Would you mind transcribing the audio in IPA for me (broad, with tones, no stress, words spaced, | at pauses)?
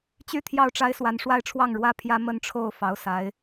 t͡ɕy˥˧ t̪ʰjɑ˥˩ʊ̯ʈ͡ʂa˥ɪ̯ swa˧˥nʂwa˥˧ɪ̯ʈ͡ʂʰwɑ˥˩ŋ ɻwä˥ pʰjä˥mə˥˧nʈ͡ʂʰo˥˩ʊ̯ fɑ˧˥ʊ̯ sa˧˥ɪ̯